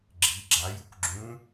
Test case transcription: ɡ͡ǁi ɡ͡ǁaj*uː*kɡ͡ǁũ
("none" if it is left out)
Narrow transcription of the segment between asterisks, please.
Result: u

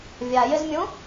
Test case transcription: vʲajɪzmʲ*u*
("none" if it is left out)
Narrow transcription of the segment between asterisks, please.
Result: ũ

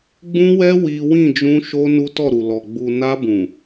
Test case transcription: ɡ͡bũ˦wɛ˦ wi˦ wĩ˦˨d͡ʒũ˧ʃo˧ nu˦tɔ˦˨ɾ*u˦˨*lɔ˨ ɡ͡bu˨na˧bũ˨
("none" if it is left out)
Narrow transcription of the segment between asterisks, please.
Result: u˨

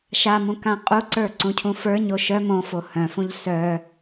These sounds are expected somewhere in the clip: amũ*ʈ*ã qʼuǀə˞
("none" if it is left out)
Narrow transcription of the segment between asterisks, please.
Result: k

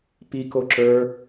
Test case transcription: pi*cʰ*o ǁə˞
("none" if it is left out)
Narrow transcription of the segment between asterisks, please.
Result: k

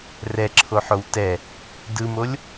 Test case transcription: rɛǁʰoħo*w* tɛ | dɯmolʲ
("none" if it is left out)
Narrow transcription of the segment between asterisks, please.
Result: w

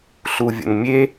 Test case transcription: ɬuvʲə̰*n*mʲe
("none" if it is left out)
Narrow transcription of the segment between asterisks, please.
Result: n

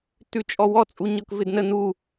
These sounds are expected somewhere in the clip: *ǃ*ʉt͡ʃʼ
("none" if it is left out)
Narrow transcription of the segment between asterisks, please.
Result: t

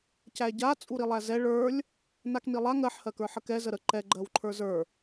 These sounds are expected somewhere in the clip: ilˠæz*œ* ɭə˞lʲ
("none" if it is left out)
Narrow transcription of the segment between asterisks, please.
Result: ɛ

